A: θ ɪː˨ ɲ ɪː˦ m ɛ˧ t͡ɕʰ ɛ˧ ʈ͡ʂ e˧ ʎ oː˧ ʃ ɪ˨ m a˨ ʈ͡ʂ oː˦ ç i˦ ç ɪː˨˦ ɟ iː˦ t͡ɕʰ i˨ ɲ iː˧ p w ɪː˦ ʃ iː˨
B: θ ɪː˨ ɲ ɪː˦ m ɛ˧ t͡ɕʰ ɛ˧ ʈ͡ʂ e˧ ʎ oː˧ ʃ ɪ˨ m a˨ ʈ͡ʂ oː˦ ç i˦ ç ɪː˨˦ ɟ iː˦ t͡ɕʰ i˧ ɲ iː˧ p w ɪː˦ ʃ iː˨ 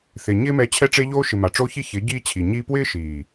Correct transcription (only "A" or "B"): A